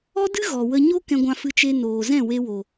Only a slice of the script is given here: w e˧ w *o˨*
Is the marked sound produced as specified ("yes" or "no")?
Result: yes